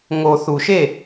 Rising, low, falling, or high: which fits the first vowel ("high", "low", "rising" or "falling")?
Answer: low